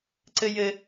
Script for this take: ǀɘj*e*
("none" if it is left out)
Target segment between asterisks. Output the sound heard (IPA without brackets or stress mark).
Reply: ɘ